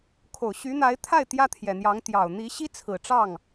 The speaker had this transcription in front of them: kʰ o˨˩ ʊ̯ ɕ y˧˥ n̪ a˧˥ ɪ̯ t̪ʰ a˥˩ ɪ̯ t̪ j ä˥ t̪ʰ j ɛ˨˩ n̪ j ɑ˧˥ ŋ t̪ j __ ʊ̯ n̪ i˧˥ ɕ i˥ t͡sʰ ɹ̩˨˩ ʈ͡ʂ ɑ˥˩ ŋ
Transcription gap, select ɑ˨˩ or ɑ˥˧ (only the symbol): ɑ˨˩